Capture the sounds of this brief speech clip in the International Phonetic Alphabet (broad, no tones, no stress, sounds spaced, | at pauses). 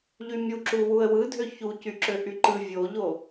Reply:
ʎ y mʲ u ǁ u w u ə̯ w ɯ dʱ ø ç u c y ǁ ø ʔ y ǃ ɯ vʲ o ʎ o